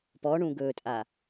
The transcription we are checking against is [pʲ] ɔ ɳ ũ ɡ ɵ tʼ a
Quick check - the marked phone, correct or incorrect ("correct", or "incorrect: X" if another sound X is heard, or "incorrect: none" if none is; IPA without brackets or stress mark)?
incorrect: p